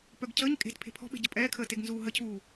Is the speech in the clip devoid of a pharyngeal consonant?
yes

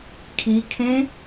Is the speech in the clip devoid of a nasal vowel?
no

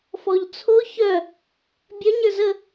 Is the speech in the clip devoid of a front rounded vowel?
no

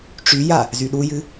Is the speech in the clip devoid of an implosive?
no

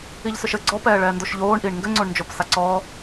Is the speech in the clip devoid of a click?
no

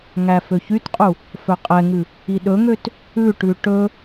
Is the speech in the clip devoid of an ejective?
no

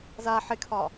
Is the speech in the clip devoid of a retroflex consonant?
yes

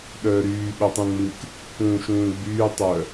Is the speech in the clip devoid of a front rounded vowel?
no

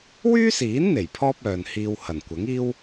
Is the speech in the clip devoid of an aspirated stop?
no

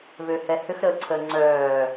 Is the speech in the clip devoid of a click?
no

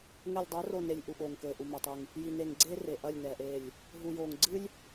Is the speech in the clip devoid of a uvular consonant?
yes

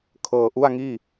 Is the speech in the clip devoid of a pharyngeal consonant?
yes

